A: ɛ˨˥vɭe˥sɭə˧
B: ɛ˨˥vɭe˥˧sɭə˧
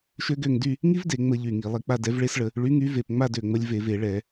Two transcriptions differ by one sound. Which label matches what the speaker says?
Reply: A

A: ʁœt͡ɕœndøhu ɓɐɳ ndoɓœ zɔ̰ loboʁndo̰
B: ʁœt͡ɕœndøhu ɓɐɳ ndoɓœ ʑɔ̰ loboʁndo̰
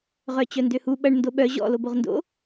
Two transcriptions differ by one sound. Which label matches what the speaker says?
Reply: B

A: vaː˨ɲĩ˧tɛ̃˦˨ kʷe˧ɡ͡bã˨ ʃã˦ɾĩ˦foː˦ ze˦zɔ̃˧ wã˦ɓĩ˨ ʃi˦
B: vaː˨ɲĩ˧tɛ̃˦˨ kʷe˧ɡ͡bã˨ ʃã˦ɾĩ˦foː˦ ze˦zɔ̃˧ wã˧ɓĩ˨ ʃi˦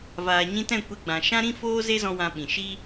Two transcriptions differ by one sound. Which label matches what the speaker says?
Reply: B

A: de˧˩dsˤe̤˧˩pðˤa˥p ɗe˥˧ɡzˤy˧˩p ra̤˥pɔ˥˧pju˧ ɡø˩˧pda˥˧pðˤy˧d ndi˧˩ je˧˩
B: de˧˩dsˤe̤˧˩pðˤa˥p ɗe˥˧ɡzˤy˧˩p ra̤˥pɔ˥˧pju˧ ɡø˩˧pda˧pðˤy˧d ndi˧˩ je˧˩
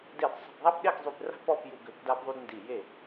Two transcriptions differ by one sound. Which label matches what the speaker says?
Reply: B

